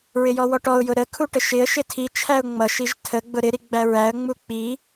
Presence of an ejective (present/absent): absent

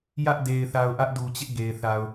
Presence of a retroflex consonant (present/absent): absent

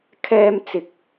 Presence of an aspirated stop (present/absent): present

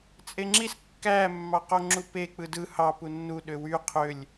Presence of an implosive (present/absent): present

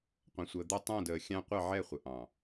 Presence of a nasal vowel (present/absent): present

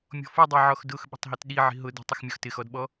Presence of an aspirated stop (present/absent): absent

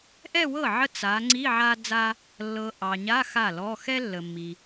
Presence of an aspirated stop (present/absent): absent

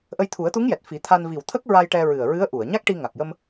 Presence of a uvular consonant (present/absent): absent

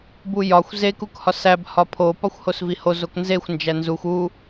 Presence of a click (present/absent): absent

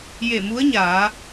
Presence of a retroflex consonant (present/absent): absent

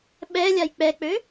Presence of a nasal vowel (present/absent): absent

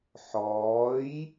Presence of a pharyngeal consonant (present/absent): present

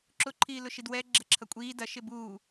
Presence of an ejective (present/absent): present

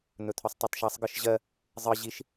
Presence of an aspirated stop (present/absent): present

